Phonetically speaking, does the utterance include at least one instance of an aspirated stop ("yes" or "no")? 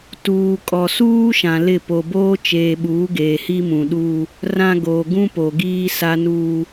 no